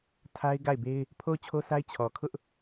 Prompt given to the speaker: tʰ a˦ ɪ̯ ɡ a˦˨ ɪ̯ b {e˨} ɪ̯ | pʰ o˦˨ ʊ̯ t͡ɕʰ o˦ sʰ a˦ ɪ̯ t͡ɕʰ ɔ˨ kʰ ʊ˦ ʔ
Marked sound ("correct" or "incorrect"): incorrect